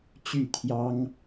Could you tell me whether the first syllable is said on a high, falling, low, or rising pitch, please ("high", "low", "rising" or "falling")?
falling